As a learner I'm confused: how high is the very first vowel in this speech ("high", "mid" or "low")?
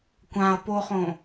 low